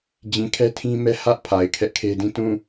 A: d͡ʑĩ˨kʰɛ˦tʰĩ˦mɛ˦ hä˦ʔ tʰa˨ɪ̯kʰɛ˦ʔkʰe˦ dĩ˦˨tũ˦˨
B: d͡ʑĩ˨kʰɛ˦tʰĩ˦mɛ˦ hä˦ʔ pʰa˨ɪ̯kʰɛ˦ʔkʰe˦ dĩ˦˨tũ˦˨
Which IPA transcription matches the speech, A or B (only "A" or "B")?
B